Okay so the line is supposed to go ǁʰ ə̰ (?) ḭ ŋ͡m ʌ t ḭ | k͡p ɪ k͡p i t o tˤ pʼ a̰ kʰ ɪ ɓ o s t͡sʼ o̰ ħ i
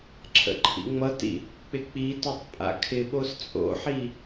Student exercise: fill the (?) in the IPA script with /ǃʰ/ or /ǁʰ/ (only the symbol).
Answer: ǃʰ